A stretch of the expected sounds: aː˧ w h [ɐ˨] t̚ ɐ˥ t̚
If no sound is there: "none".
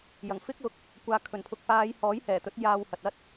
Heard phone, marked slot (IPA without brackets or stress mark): ɐ˨